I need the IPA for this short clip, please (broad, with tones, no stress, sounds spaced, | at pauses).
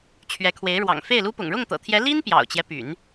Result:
t͡ɕʰ ɥ ɛ˧˥ kʰ w e˧˥ ɪ̯ ɻ w ɑ̰˨˩ ŋ f e˥˩ ɪ̯ l u˥ p ʊ̰˨˩ ŋ ɻ ʊ˥˩ ŋ t̪ ɤ̰˨˩ t̪ʰ j ɛ˧˥ l i˥ n p j ɑ̰˨˩ ʊ̯ t͡ɕ j ɛ˦ p y̰˨˩˦ n